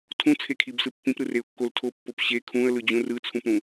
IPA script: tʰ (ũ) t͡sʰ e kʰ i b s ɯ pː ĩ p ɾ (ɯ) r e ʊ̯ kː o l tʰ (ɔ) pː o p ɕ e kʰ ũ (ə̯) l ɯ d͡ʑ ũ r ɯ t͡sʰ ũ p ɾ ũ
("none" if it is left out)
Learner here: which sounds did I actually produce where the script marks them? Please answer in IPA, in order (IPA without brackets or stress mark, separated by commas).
ũ, ɯ, o, ə̯